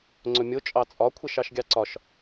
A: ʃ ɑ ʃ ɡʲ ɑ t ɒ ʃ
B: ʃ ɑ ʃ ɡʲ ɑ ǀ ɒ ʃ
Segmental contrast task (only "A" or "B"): B